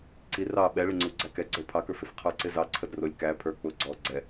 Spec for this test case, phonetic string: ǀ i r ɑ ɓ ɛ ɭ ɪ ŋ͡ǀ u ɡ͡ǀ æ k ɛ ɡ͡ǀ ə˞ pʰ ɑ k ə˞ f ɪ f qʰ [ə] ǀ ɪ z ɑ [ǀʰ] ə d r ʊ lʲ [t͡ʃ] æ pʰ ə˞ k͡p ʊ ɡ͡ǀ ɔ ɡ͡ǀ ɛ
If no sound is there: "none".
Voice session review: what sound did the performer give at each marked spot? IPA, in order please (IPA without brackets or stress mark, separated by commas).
ə˞, ǀʰ, k